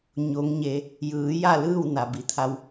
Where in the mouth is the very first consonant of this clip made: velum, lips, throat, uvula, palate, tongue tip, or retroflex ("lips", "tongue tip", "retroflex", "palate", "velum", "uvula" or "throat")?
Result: palate